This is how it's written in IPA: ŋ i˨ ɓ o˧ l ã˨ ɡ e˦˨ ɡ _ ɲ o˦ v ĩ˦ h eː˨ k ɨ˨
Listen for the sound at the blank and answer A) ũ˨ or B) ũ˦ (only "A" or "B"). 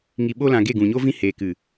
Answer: A